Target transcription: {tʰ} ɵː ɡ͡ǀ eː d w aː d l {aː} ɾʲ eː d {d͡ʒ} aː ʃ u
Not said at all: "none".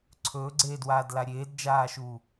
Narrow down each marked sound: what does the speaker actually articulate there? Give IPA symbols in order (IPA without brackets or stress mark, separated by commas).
ǀʰ, a, d͡ʒ